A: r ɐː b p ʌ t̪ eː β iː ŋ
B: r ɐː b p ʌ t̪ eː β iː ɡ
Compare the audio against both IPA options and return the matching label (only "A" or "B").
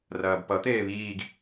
B